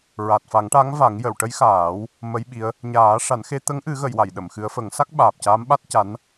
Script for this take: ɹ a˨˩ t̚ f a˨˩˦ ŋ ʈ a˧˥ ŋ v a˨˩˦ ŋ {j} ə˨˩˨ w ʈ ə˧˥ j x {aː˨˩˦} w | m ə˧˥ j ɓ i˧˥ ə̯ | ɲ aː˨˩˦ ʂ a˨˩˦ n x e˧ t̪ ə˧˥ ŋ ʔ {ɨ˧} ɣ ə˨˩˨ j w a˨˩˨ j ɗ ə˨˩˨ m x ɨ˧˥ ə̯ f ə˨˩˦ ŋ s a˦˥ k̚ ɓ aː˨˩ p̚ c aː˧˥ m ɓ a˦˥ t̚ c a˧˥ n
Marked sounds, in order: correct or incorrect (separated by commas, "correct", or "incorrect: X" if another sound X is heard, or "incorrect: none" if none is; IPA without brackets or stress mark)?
correct, correct, incorrect: ɨ˨˩˦